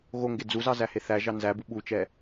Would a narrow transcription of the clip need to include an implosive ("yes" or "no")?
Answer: yes